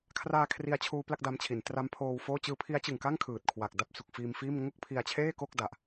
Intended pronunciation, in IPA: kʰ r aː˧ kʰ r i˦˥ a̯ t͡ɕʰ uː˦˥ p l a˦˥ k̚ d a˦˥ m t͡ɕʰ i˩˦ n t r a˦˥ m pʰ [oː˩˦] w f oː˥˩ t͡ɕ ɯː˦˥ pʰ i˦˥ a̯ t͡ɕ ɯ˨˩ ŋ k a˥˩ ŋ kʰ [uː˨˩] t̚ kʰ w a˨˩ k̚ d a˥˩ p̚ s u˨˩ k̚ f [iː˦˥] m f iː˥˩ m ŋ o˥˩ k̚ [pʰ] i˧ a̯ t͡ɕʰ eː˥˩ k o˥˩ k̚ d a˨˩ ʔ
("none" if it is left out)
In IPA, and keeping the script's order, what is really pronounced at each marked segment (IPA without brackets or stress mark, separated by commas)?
oː˧, ɯː˨˩, iː˧, pʰ